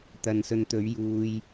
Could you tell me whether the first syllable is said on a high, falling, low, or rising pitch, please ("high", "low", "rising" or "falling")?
low